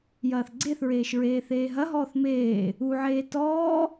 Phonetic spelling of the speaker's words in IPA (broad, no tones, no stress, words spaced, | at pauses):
jɐːθɡ͡ǀeθɹeːʃ ɹeːθeːɦɐɦɔːθ meː | uʕeː tɔː